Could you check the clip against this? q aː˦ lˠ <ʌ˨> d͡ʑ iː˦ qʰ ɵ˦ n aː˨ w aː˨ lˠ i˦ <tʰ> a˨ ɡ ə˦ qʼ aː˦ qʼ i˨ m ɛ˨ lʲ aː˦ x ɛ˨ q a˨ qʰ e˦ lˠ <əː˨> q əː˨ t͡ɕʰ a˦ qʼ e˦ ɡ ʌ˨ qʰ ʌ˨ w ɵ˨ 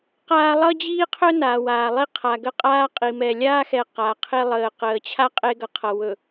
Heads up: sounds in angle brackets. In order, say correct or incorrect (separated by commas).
incorrect, incorrect, correct